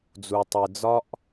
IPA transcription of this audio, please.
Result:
d͡z u˨ tˤ i˨ d͡z ɒ˧ ʔ

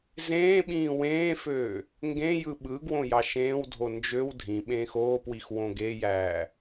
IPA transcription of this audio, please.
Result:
z ẽː ɓ ĩː w ẽː f øː | ŋ ɡ ẽ j ɯ ɓ ɯ ɡ w õ j ɑ ʃ ẽː w dʱ o n d͡ʒ ø w dʱ ĩ ɓ ẽː x oː p w i x w õ ɡ e j æː

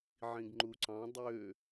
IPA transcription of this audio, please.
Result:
ʕ ĩ ɡ ŋ͡ǃ u ǀ ɑ̃ dˤ ø

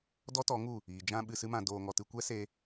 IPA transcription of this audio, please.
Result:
d ɔ˦ t ɔ˨˦ ŋ u˦˨ | iː˨ d͡ʒ ã˧ ɓ ɨ˧ s ɨ˦ m ã˧ d oː˧ ŋ ɔ˧ t ɨ˧ kʷ ɛ˦ s e˧

